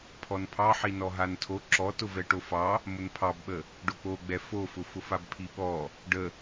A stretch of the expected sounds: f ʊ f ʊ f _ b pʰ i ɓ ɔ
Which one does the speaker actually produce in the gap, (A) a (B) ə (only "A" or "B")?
A